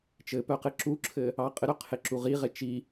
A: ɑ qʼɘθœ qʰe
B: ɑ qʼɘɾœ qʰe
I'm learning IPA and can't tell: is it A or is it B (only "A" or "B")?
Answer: B